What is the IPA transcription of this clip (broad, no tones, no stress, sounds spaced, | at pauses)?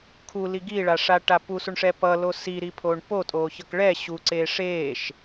kʰ u l i ɡ i ɭ a ʂ a ʈ a p u s u ɳ ʂ ɛ p ʌ l o s i ɾ i pʰ o ɳ p o tʼ oː ç ʌ k ɭ ɛ ɕ u ǀ eː ʂ eː ʃ